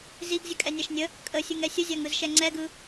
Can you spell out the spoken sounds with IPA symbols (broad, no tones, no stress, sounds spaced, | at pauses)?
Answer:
z i ɡ zʲ ə kʼ ɛ nʲ a ʃ nʲ ə | kʼ ə sʲ ɯ ŋ ɛ sʲ ə zʲ a ŋ ɯ z ʃ ɛ ŋ͡ǀ ɛ ɡ ɯ